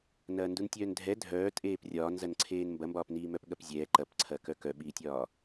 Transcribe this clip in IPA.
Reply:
n ɐː n d u n tʲ œː n dʱ ɛ dʱ œː tʼ eː p rʲ ɒː n z ɐ n ǀʰ eː n m b ɐ m b ɒː p n iː m œ p ɠ ɐ p zʲ ɛː ǃ ɐ p ǀʰ ɐ k œ k œ ɓ iː tʲ ɒː

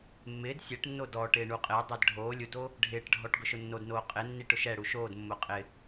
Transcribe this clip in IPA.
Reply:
mː ɪː d sʲ ɛ ʈ nː o d ɔ ʈ ɪː ɳ u qʼ ɪː dˤ ɛ d ɖʱ oː lʲ u d o | ɖʱ ɪː ʈ ɖʱ ɔ ʈ ɡ ʊ ʃ ʊ nː o d n oː qʼ ɪ nː i ʈ ʊ ʃ ɛ ɽ u ʃ oː d mː ʊː qʼ ɪ

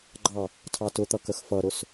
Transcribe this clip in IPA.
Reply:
ɡ͡ǃ ɑ | tʰ ɑ t ʊ t̪ ʌ k ə x f ʌ ɾ ʊ s

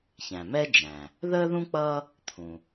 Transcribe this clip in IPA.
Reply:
ç æ̃˩ m ɛ˥ d͡ʒ æ̃˩ | ð əː˥ ð ũ˥ k͡p ʌː˥ | t̪ʰ ũ˩

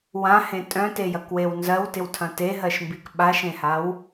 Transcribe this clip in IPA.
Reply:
w ã h ẽ tʼ œ̃ t e j ɐ k w e w n z ɜ w t ɪ w tʰ ɐ̃ t e ɦ ɜ ʃ m b i k ɓ a ʃ ẽ h a w

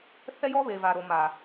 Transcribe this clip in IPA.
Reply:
θ ɛ˦ j ɔ˦ β e˨ v a˨ ɾ o˨ m a˨

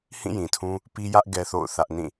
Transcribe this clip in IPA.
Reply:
h ĩ˦˨ j ĩ˨ tʰ ũ˦ | p i˦ j ä˦ ʔ ɡ ɛ˦ θ o̰˦˨ ʊ̯ θ ä˦ ʔ n ĩ˦˨

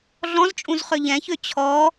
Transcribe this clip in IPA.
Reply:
ɮ ɔ̃ z t͡ʃʼ ũ z χ ø ʎ ɛ̃ ç ø t͡ɕʰ ɔ

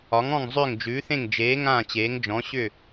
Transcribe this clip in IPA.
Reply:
ɒ˩˥ ŋ ɔ̃˥˩ ŋ zˤ ʏː˥˩ ŋ d͡ʒ ʉː˩˥ θ ẽ˥˩ ŋ d͡ʒ eː˩˥ ŋ ãː˥˩ t͡ɕ eː˩˥ ŋ d͡ʒ ɔ̃˩˥ ɕ ʏ˥˩

